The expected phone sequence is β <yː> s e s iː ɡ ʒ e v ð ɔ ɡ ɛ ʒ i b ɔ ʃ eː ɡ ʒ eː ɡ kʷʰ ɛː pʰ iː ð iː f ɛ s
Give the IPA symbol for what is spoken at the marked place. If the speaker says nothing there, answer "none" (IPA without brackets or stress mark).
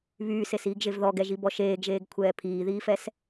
yː